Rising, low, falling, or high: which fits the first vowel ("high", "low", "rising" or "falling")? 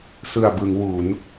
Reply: low